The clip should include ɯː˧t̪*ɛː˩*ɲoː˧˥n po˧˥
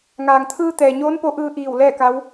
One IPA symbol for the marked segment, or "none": ɛː˩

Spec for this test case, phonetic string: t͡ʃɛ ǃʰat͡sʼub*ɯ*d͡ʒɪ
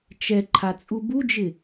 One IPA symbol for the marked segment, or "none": u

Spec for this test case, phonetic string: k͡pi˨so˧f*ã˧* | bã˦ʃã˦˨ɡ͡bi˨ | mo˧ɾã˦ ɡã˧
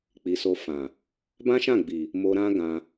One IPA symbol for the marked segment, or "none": ã˨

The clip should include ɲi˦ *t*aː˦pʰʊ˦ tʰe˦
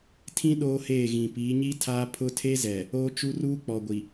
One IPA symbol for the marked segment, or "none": tʰ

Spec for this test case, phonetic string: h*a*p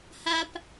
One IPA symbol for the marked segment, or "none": a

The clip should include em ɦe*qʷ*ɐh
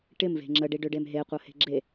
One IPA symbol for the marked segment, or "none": qʷ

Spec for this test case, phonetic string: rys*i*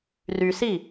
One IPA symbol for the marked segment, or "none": i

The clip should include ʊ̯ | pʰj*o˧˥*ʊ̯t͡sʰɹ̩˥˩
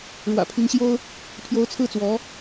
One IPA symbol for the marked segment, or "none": o˧˥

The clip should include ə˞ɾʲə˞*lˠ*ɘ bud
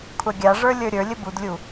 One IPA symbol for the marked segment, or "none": lʲ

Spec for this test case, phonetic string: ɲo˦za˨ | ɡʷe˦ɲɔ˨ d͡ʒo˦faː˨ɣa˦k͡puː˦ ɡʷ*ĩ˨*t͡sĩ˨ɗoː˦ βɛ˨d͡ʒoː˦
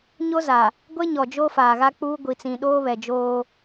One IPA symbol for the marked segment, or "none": i˨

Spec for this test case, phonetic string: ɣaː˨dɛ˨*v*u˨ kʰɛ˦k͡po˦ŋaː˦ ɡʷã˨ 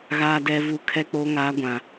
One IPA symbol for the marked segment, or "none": v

